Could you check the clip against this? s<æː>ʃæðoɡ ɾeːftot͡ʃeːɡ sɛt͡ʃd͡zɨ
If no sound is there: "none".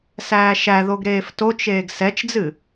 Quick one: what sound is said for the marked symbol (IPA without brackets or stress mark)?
æː